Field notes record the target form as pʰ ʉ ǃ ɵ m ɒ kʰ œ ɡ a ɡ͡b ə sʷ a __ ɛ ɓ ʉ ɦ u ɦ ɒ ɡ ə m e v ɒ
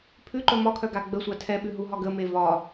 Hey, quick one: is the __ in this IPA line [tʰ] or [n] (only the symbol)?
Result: tʰ